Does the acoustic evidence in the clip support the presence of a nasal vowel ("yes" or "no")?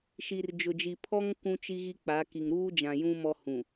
yes